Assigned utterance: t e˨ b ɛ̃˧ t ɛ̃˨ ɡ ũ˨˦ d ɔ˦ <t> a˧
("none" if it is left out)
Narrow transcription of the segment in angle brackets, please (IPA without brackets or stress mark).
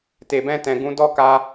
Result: k